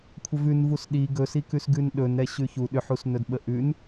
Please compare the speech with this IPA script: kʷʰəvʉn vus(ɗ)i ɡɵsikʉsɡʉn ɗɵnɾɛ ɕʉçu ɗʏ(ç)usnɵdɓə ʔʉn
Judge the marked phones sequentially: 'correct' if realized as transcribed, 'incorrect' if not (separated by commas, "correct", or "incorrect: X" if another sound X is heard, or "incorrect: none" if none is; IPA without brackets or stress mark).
correct, incorrect: ħ